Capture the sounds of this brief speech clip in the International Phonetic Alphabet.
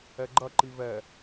ɛ ɡ͡ǃ ɐ ǃ i v ɛ

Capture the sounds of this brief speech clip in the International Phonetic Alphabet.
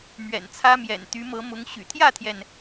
m ɥ ɛ̰˨˩ n t͡sʰ ä˦ m j ɛ̰˨˩ n t̪ y˨˦ m ɤ˨˦ m ʊ˨˦ ŋ ɕ y̰˨˩ t̪ʰ j ä˥˨ t̪ʰ j ɛ˩ n

